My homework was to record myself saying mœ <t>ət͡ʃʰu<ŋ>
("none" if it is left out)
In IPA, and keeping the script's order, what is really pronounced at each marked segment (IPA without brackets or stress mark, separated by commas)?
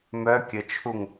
kʲ, ŋ